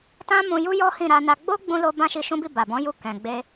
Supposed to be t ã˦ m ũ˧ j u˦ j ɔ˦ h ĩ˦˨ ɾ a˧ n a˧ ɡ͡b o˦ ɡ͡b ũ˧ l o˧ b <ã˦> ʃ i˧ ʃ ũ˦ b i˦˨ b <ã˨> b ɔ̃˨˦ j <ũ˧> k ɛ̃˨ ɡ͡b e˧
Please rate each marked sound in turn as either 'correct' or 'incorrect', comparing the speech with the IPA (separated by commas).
correct, incorrect, incorrect